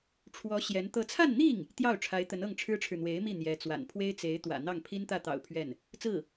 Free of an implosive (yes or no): yes